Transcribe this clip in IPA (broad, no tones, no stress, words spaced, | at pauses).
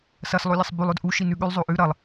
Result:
sɐs lˠolʲɐsˤbʉlˠ ɵdʔu ʃinʉɠʉlˠ zˤoʔʉ ɾɐlˠ